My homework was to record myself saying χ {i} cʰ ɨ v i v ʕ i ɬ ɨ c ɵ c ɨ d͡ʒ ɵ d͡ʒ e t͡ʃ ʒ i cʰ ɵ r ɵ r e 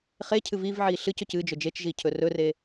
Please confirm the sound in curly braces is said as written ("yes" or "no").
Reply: no